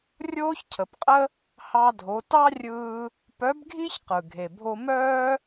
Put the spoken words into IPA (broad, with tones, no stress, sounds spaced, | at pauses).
rʲ oː˥ ç cʰ ə˩˧ p qʼ ə˥ | h ɑ˧ dʱ o˩˧ t ɑ˥ rʲ ɯː˧ | p œ˧˥ b ɡʱ i˥ ç q ɯ˩ ɡʱ e˩ bʱ o˧ m œː˥